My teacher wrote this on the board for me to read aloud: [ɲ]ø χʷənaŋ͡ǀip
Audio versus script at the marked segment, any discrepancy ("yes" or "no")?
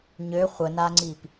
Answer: no